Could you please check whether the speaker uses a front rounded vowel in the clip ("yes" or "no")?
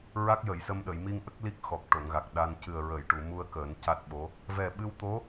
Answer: no